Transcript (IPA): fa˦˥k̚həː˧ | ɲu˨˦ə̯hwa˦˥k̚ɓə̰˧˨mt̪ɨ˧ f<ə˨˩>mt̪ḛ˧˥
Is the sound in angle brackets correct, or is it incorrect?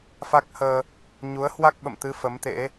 incorrect: ə˨˦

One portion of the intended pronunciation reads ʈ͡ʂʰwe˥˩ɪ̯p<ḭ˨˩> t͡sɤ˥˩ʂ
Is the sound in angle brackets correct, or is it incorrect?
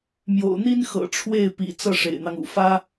correct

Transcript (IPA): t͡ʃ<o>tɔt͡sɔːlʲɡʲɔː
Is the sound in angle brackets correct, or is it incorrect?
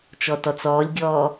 incorrect: ɔ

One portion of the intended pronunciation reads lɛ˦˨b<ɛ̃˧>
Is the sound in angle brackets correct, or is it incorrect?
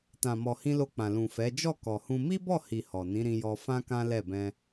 correct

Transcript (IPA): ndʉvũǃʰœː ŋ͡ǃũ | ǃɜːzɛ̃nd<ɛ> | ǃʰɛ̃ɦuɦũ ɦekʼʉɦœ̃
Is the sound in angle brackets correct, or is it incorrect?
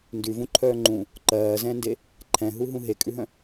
incorrect: e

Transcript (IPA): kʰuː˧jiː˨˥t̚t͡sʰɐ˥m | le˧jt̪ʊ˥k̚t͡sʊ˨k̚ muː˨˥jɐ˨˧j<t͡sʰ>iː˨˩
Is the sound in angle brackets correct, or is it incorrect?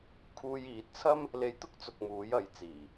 incorrect: t͡s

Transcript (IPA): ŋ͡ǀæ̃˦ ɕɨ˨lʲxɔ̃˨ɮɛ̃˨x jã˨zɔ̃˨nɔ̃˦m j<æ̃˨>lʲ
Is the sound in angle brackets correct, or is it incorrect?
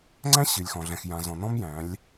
incorrect: æ̃˨˦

